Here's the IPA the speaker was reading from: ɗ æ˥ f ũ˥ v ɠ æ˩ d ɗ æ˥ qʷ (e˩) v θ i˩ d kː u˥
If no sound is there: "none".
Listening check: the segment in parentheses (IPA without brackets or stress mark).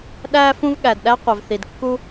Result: e˩